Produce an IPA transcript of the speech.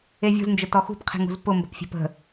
evʲṳznd͡ʒə tɔxṳpqʰe̤ŋṳz pʊmbə̤pfʲe̤p ə̤

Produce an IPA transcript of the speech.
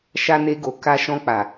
ʃa˦ne˦ɡo˧ ka˧ ʃɔ̃˧k͡pa˨

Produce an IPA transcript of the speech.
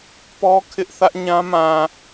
pɔ˦kʰɪ˦ʔ θä˦ʔɲã˦ mã˨

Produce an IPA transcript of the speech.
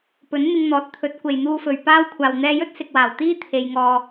pɵ˨˥nn̪ɪ˧ŋn̪ɔː˨˥t̚t̪ʰɵ˨˥t̚ kʷe˨jn̪uː˧fɵ˨ɥ paː˥w kʷʰaː˨wn̪ɛː˧jɵ˥t̚ sɪ˨k̚waː˨˩w t̪iː˥ t̪ʰe˧jŋɔː˧

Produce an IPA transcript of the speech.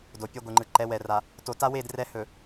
do˨pʲʌ˦ɡʷɯ˨ŋ͡ǃɯ˨ ǃɛ˨˦wɛ˨ ra˨ | to˨ta˦we˦˨d rɛ˦hɵ˨

